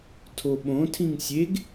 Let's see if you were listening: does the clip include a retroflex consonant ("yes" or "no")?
no